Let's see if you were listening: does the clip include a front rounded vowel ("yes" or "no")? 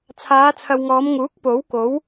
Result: no